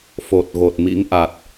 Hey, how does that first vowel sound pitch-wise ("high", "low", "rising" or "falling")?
low